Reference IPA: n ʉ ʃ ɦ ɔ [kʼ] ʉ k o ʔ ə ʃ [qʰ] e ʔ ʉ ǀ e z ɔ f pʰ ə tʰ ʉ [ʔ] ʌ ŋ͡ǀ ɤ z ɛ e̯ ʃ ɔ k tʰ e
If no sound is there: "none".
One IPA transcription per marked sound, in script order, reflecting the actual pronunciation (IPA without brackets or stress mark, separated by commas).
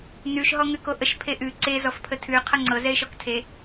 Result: ŋ, pʰ, qʰ